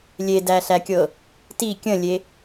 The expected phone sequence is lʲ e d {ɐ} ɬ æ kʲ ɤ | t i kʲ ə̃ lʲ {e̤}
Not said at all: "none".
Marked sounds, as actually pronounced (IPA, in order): æ, e

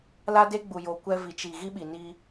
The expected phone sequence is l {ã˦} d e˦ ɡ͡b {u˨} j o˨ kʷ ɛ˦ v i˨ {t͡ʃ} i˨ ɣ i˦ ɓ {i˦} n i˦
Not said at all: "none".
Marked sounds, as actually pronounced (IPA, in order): a˦, u˨, t͡ʃ, i˨

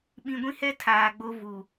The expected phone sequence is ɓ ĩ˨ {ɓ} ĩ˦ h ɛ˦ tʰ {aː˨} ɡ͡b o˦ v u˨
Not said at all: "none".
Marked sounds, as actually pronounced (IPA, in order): ɡʷ, aː˨

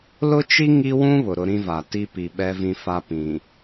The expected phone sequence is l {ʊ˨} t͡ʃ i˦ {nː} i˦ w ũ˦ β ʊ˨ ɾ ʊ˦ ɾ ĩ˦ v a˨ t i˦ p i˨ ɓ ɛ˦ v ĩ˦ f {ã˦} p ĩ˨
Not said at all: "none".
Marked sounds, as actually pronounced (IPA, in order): ʊ˦, ŋ, a˦

